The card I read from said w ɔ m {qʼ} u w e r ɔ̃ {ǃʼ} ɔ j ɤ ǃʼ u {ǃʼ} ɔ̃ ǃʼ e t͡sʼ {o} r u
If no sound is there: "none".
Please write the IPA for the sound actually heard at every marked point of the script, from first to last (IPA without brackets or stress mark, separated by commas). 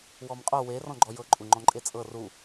qʼ, ɡ͡ǃ, ŋ͡ǃ, ɤ